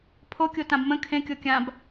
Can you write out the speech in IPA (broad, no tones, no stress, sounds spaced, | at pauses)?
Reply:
pʰ o kʲ o t ã b m ə̃ kʰ ẽ kʲ o kʲ ã b